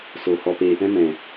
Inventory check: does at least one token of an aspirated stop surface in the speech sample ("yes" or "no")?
no